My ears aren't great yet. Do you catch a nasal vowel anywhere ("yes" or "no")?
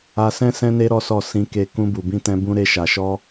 yes